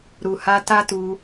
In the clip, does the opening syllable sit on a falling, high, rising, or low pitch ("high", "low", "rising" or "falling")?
low